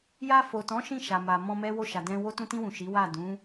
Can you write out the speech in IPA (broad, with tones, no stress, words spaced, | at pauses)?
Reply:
ja˧fo˨tɔ̃˨˦ ʃĩ˦˨ʃa˨ma˨ mɔ̃˧mɛ˦wo˦˨ ʃa˨dɛ̃˧ wo˧tũ˧tĩ˧wũ˨ ʃi˨˦wa˦˨ dũ˨˦